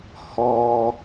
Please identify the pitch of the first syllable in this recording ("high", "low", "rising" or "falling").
low